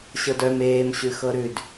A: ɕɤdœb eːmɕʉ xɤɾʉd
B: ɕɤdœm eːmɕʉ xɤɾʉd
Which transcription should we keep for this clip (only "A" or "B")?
B